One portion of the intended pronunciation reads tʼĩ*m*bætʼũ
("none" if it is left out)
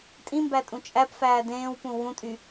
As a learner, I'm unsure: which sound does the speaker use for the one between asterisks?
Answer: m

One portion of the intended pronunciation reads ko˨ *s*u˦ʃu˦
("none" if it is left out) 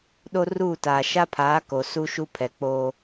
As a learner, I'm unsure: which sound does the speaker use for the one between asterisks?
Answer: s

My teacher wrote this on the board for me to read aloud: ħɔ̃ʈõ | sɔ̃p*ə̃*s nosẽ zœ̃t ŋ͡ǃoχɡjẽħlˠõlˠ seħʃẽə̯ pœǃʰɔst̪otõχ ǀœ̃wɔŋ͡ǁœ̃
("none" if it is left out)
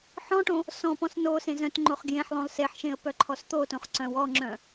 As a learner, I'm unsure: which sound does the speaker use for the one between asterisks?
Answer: ɔ̃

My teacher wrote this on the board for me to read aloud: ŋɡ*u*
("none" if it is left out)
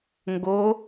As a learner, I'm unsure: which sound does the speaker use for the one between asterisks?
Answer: o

